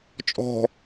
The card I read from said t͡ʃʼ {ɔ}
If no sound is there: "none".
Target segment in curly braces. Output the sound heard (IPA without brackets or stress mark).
ɔ̤